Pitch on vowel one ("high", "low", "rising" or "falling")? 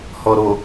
low